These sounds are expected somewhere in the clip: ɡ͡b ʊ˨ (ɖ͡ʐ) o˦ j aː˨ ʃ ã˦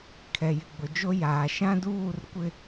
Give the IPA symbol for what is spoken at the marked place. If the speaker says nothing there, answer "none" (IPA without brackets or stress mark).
d͡ʒ